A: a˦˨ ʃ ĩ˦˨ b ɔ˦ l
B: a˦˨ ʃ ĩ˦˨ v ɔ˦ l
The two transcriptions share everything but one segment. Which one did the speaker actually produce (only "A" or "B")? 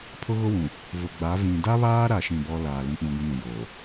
A